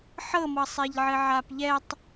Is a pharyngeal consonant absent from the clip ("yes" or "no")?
no